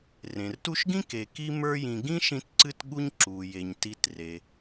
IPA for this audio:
r ẽ˩ r t u˦ ʃ ɡ ĩ˥ k e˨ k i˦ m ə˞˦ j ĩ˨ ɡ ĩ˥ ʃ ĩ˦ t ǀ ɨ˦ t ɠ u˦ ɲ ǁ u˩ j e˩ ɲ t i˨ t r e˩

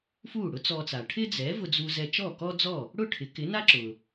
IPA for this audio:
f uː˥˩ ɽ ʊ˥ t͡s ɔ˧ t͡s a˩ ʈʰ ɪ˥ d͡z ɛ˩˥ v ʊ˧ d͡z u˧ z ɛ˧ t͡ʃ ɔ˥˩ k ɔ˥ d͡z ɔ˥˩ | ɽ ʊ˥˩ ʈʰ ɪ˩˥ k ɪ˩˥ n a˥ ǁ ʊ˩

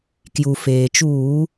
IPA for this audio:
k j u˩ f eː˩ t͡ʃ uː˧˩˧

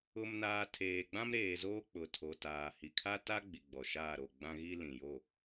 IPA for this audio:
ʊ˨ m n aː˨ tʰ eː˨ ɡ͡b ã˦ m ɾ eː˨ z oː˦ k͡p ʊ˨ tʰ o˨ t aː˨ h i˨ kʰ a˦ t a˦ ɡ͡b i˨ ɡ͡b ɔ˨ ʃ aː˦˨ ɾ o˦˨ ɡ͡b ã˦ ɣ i˦ l ĩ˨ j o˦˨

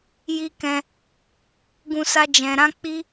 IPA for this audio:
j i˦ k ɛ̃˧ | ɡ ũ˧ s a˧ d͡ʒ ɛ̃˨ ɾ ã˧ k͡p i˧

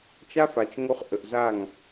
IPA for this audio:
t͡ʃ a˦ f a˨ t͡ʃ ŋ o˧ χ ʔ ə˨ ʔ z a˦˨ ŋ

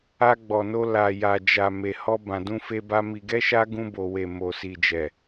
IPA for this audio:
a˧ ɡ͡b ɔ˨ n o˧ l a˨ j a˨ d͡ʒ a˨ m e˨ h ɔ˧ b ã˨ d ũ˧ f e˧ b a˧ m i˨ ɡ ɛ˧ ʃ a˧ ɡ ũ˧ b o˨ w e˨ m o˨ s i˨ d͡ʒ ɛ˨

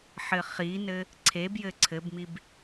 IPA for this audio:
ħ ɘ χ i n ɘ | ǀʰ e b j ɘ ǀʰ ɘ b m i b

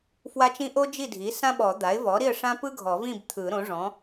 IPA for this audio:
f w a˥ t͡ʃ ĩ˥ ʔ o˥ d͡ʒ i˥˨ dʱ i˩˥ s ã˥ ɓ ɔ˨˩˦ d̪ a˩˥ ɪ̯ v ɔ˩˥ ɾ i˥˨ ə̯ ʂ ã˥ p ɯ˥ ɡʱ ɔ˨˩˦ v ĩ˥˨ b t̪ʰ ɯ˨˩˦ ɾ õ˩˥ ʐ ɔ̃˩˥

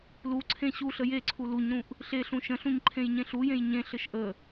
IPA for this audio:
l u ǀʰ ẽ ɕ u ɬ ə j e ǀʰ u l u ɲ ɾ ũ ʔ | ɬ e ɬ ũ ʃ ə̃ ɬ ũ ɲ ǃʰ ẽ j ɲ ẽ ɬ u j ẽ j ɲ ẽ ɬ ɘ ʃ ʔ ə

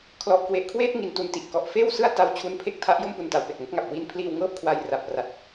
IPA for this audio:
kʰ l ɔ˨˩ ʔ k w e˨˩ ʔ kʰ w eː˥˩ t̚ ŋ i˨˩ n t u˨˩ n t i˨˩ ʔ k ɔ˨˩ ʔ f eː˥˩ w s ɯ˥˩ a̯ t a˦˥ w t͡ɕʰ u˦˥ n pʰ e˥˩ k̚ tʰ a˦˥ ʔ j o˥˩ m p u˨˩ n t a˨˩ w p e˨˩ k̚ m o˦˥ k̚ ŋ a˨˩ p̚ w i˧ n pʰ l iː˧ w ŋ ɤː˥˩ p̚ kʰ w a˧ j r a˨˩ p̚ r a˨˩ t̚

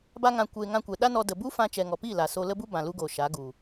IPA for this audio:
b a˧ ŋ ã˨ kʷ eː˨ ŋ ã˧ kʷ ɛ˨ ɗ a˦ n ɔ˧ d ə˨ b u˦ f ã˧ t͡ʃ ɛ˨ ŋ ɔ˨ p iː˦˨ l a˨ s o˧ l ə˦ b u˦ b ã˨ l u˧ ɡ oː˨ ʃ a˨˦ ɡ u˨

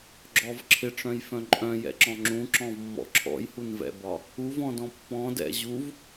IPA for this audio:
ɡ͡ǁ ɔ v ǁʰ ɪ ʈ͡ʂ œ̃ j f œ̃ ǃʼ œ̃ j ɛ̰ ǁ ɔ̃ ŋ͡ǁ ũ ǁ ɔ̃ v mː ɔ̰ ǁʰ ɔ̰ j h u n v ɛ̰ b ɒ | u v ɔ̃ d ɔ̃ pː ɔ̃ d ɛ̰ ʑ u v

